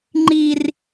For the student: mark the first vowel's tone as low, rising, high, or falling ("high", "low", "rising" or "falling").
low